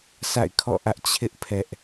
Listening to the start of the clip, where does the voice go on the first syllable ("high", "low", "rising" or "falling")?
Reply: falling